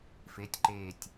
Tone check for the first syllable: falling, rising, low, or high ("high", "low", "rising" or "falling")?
rising